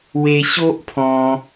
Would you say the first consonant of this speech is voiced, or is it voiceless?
voiced